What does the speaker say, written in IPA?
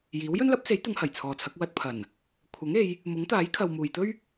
j iː˨˥ w j ɵ˥ n l ɐ˨˥ p̚ s e˨˥ j t̪ ʊ˨˧ ŋ h ɐ˨˩ j t͡sʰ ɔː˨ t͡sʰ ɐ˨˥ k̚ w ɐ˧ t̚ pʰ ɐ˨˩ n | kʷʰ ɐ˨˥ ŋ e˨˧ j | m ʊ˨˥ ŋ t̪ aː˨˥ j kʰ ɐ˨ w m uː˨ j t̪ ɵ˥ ɥ

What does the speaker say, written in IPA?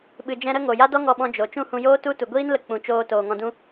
ɓ ɨ˨ d͡ʒ ɛ̃˧ ɾ ə˦ ŋ o˨ j a˦ d ɔ˦ ŋ ɔ˧ ɓ ɔ̃˧ d͡ʒ o˨ t͡ʃ ũ˦˨ h ũ˧ j oː˦ t u˦ t u˨ ɡʷ iː˦ n l ə˧ k͡p ũ˨ t͡ʃ oː˧ t oː˨ ŋ ɔ̃˧ d ũ˦

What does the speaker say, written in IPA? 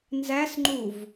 n z æ s ŋ͡ǃ u v

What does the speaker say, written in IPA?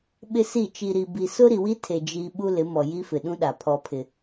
ɓ ɪ˦ s i˦˨ t͡ʃ i˨ ɾ i˨ b i˨ s ʊ˦ ɾ i˨ w i˦ tʰ e˨ d͡ʒ i˦ ɓ u˦ l ɪ˨˦ m ɔ˨ j i˦ f ɪ˨ ɗ ũ˦ ɗ a˨ pʰ ɔ˦ pʰ ɪ˦

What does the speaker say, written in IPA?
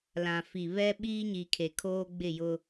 l ã˨ f i˨ β ɛ˦ ɓ iː˦ ɲ i˨ kʰ e˨ kʰ oː˦ ɡ͡b ɪ˦˨ j ʊ˦

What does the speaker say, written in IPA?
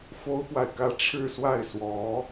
f o˥ ʊ̯ p w a˨ ɪ̯ k ä˥˧ ʈ͡ʂʰ ɻ̩˥˧ s w a˥˩ ɪ̯ s w ɔ˧˥

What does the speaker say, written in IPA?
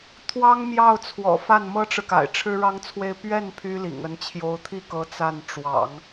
t̪ʰ w ɑ˥ ŋ m j ɑ˥˩ ʊ̯ t͡sʰ w ɔ̰˨˩ f a˥˩ n m ɤ˥ ʈ͡ʂ ɻ̩˨ k a̰˨˩ ɪ̯ ʈ͡ʂʰ ɻ̩˥ ɻ ɑ˥ ŋ t͡sʰ w e˥˧ ɪ̯ p ɥ ɛ˥˩ n pʰ y˥ l ḭ˨˩ ŋ ə˧˥ n t͡ɕʰ j o˧˥ ʊ̯ t̪ʰ i˥˩ k ɤ˧˥ t͡s a˥˩ n ʈ͡ʂ w ɑ̰˨˩˦ ŋ

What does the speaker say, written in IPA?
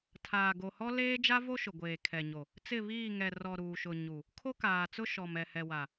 tʰ aː˨ ɡ o˨ h ɔ˦ l eː˦ d͡ʒ a˦ v o˦ ʃ ʊ˨ ɡʷ eː˨ kʰ ɛ˨ ɲ o˨ | t͡s ɪ˦˨ β iː˦˨ ŋ ɛ˨ r ɔ˨ ɾ uː˨ ʃ ʊ˨ ɲ u˨ | kʰ o˦ k aː˨ t͡s ʊ˦ ʃ ɔ˨ m ɛ˨ h ɛ˨ w a˨

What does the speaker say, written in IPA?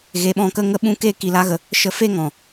ɣ e˧ ɓ ɔ̃˦˨ k ə˦ ŋ ə˦ ɓ ũ˦ k e˦ k i˧ l a˦ ɣ ə˧ | ʃ ə˧ f e˦ ŋ ɔ̃˨

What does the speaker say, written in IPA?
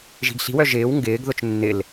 ʒ i̤ ɡ ɬ i̤ w œ ʒ ɪː w ŋ ɡ ɪː ɡ ð ʊ t͡ʃ nː ɪ l

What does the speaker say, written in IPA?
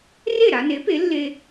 r e˥˩ ɾ a˧ n e˩˥ p e˩˥ lː e˧

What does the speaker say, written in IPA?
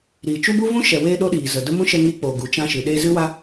ɾ iː˨ t͡ʃ u˦ b u˦ v ũ˦ ʃ ɛ˨ w eː˧ ɗ o˦ ɗ iː˨ z ə˨ d ə˦ m ũ˦ ʃ ɛ˧ ŋ iː˧ k͡p oː˨ ɡ u˨ t͡ʃ ã˧ ʃ ɨ˨ ɗ e˧ z ɨ˦ w a˦

